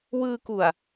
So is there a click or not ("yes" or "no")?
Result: no